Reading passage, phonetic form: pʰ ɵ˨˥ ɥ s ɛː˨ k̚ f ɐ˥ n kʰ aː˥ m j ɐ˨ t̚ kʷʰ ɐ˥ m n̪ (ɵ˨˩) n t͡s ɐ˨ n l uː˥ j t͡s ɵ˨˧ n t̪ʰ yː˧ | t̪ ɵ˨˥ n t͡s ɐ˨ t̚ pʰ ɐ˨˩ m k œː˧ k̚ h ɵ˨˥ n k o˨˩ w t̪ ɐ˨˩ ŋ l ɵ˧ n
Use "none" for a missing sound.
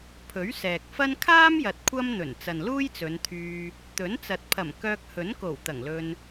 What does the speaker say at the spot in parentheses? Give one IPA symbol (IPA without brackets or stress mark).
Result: ɵ˨˩